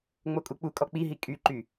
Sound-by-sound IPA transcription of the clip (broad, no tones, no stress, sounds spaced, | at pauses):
ŋ͡m o kʼ u k͡p u kʼ ɔ k͡p i ɦ i kʼ y ǃ y